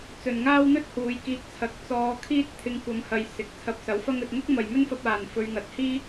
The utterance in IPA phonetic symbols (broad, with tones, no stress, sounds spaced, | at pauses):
t͡s ɵ˨ n ŋ aː˥ w n̪ ɵ˥ t̚ h uː˨˧ j k iː˧ k̚ t͡sʰ ɐ˨˥ k̚ t͡s ɔː˧ kʰ iː˥ t̚ t̪ʰ ɪ˧ ŋ kʷ ɐ˨˧ m h ɐ˨ j s ɪ˨˥ k̚ t͡sʰ ɐ˧ p̚ s ɐ˨˥ w f ɐ˥ ŋ ɵ˧ t̚ ŋ ʊ˥ k̚ m ɐ˨ j m ɵ˥ n f ɐ˧ p̚ aː˨ n f ɵ˧ ɥ ŋ ɐ˨˥ t̚ h iː˥